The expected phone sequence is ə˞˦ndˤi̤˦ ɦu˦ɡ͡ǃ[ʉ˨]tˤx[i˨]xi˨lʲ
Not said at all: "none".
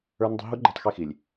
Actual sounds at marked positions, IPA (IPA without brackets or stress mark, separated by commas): u˨, i˦˨